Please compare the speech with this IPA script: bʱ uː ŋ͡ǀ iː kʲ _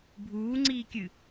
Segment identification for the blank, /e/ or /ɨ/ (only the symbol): ɨ